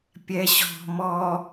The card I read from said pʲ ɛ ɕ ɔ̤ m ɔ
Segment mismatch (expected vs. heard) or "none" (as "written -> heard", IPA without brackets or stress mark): none